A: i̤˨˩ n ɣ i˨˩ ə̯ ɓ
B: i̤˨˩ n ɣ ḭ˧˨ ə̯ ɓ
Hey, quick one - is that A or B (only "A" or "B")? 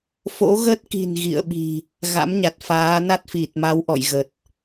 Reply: B